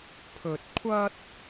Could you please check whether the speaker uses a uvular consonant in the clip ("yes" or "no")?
no